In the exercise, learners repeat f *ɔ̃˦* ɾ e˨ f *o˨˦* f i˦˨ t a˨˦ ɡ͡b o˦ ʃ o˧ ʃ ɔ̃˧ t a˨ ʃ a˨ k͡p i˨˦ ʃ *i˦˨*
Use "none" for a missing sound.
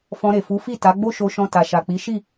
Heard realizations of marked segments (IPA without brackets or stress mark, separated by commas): ɔ̃˧, u˨˦, i˦˨